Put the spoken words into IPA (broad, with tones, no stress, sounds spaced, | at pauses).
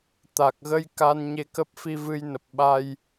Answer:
t̪ a˨˩ k̚ ɣ ə˧ j k a˧ n ɲ e˧ k ə˦˥ p̚ f i˧ v ɨ˧ j n ə˨˩ p̚ ɓ a˧ j